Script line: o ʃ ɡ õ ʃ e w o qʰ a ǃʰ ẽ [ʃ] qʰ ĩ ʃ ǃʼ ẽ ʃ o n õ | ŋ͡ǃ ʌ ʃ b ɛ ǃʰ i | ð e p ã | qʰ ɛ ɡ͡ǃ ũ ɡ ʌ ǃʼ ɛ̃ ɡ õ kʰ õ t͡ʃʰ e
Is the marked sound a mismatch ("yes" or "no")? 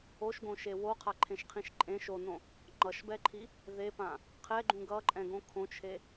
no